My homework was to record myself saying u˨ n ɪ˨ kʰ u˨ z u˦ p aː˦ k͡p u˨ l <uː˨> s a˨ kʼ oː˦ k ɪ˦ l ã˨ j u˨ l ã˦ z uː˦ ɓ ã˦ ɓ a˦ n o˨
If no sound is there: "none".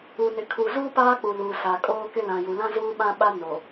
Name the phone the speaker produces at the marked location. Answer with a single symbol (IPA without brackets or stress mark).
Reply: uː˨